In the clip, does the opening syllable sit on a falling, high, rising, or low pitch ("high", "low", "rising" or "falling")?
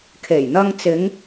low